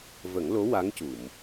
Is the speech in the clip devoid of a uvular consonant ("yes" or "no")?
yes